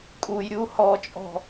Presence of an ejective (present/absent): present